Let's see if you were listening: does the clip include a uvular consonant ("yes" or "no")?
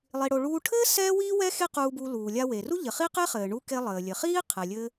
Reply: yes